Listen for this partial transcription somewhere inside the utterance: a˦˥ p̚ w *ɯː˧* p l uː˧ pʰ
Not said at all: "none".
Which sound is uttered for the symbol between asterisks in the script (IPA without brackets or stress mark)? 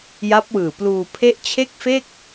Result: ɯː˨˩